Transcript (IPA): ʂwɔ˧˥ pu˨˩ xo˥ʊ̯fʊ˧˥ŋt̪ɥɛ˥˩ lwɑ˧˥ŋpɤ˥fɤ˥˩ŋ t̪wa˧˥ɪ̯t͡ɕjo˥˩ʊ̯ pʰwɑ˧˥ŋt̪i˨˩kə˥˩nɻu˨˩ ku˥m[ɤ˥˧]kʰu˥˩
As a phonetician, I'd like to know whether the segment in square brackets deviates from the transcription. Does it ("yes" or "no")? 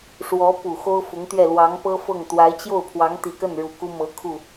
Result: yes